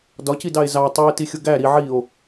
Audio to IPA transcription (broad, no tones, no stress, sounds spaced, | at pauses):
d ɒ c i d ɑ e̯ z ɑ tˤ u e̯ t i xʲ ʊ ɡ æ ɾ i ʕ i o̯